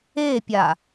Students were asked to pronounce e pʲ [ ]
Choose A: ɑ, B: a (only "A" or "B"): B